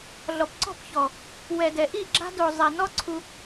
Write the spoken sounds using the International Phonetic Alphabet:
ɮ ɔ˨ p ǀ ɔ̤˦˨ p ç ɔ˨ | w ɛ˨ d ɛ˨ ʔ i˦˨ ɡ͡ǁ a̤˧ d o˨ zˤ ɛ˨ n ɔ˦ ǀʰ u˧

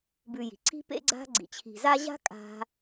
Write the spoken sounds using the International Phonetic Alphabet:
b ʉ˨ j i̤˩ ǀ i̤˦ p ḛ˦ ɡ͡ǀ a̤˦ ɡ͡ǀ ḭ˨ t͡ɕʰ i̤˨ z a˦ ʑ a̤˥ kʼ a̤˥

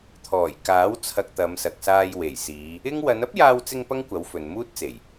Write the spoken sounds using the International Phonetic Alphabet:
t̪ʰ ɔː˨˩ j k aː˨˥ w t͡sʰ ɐ˧ k̚ t̪ ɐ˨˧ m s ɐ˨ k̚ s aː˧ j w e˨˩ j s iː˨˧ | ɪ˥ ŋ w ɐ˨˧ n ɐ˥ p̚ j aː˧ w t͡s ɪ˧ ŋ p ɐ˥ ŋ kʷ ɐ˨˥ w f ɵ˨ n m uː˥ t̚ t͡s e˨˩ j

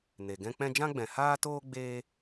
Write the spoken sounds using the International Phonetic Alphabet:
n e˨ ɡ ɛ̃˦ k͡p ɛ̃˦ d͡ʒ ã˦ ɡ͡b ɛ̃˨ h aː˦ t oː˦ ɡ͡b eː˦

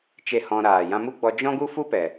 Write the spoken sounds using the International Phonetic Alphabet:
t͡ʃ e˦˨ h ɔ̃˧ ɾ aː˨ j ã˧ m u˦ ɡ͡b ɔ˧ d͡ʒ ɔ̃˦ ɡ u˦ f u˦ p ɛ˨

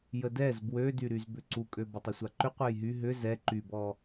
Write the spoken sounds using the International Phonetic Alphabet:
j ə d ɛ z b w ø d y ɾ y z b ʏ ǀ u kʼ ø b ɔ tˤ ʏ sʷ a ǃ ʏ qʷ ɛ j ɦ y ɦ ʏ z ɛ ǃ y b ɔ

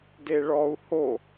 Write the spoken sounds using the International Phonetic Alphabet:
d e ɭ ɔ u̯ h o

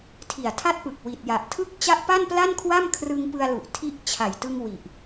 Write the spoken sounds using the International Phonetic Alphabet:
tʰ i˨˩ a̯ tʰ a˦˥ t̚ p ɯ˨˩ k̚ w i˨˩ t̚ j a˨˩ ʔ tʰ ɯ˥˩ k̚ t͡ɕ a˦˥ ʔ p a˥˩ n p l a˥˩ n kʰ w a˥˩ m kʰ r ɯ˧ ŋ p ɯ˧ a̯ l u˨˩ ʔ tʰ i˦˥ ʔ t͡ɕʰ a˨˩ j t ɯ˧ ŋ w i˨˩ ʔ

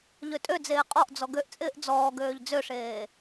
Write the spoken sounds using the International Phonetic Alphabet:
ʎ ø tʼ ø d͡z eː qʼ ɔ ʔ d͡z ɔ ɡ ø ʔ t͡sʼ ɪː ʔ d͡z ɔː ɡ øː ʎ d͡z ø ʂ eː

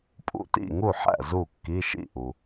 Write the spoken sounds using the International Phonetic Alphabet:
pʼ ṵ˥˩ t ḭ˥˩ ŋ u˥˩ ħ æ̰˥˩ z u˥˩ kː i˧˥˧ ʃ ḭ˥˩ ʔ u˩

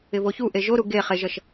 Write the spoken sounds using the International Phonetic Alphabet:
ɪ v o ç u ʔ e ʒ o ɾ u ɡ e χ e ʒ ʌ ʃ

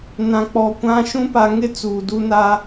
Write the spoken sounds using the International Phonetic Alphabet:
n ã˨ k͡p ɔ˨ kʷ ã˦ ʃ ũ˦ p a˨ ŋ ɪ˦ t͡s uː˨ d u˦ n a˦

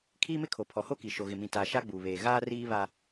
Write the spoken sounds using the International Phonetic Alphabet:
kʰ iː˦ m ɪ˦ kʰ o˨ pʰ ɔ˨ h o˦ k i˨ ʃ o˨ ɣ ɪ˨ m ĩ˨ t a˨ ʃ a˦ ɡ͡b uː˨ β eː˨ ɣ aː˦ r iː˦ β a˦

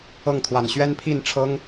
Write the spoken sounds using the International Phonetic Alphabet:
ɤ˥˩ ŋ t̪ʰ w a˨˩ n ɕ ɥ ɛ˥ n pʰ i˥˩ n ʈ͡ʂʰ ɤ˥ ŋ

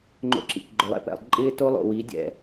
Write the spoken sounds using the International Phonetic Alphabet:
ŋ͡ǃ o̰˧ ǁ ḭ˨ k ɡ͡ǃ ʊ˨ lˠ ɛ̰˦ p ɛ̰˨ lˠ ǃʼ ɪː˦ t o˦ lˠ o̰˨ w i˨˦ dʲ ɛ̰˨

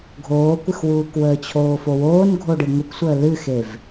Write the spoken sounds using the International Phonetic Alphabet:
ɡʱ oː kʷ ɨ x w uː k w əː t͡ɕʰ oː f o w oː n ɡʱ o ɖ ɨ ŋʷ ə kʷ sʷ əː l ɨ x e v

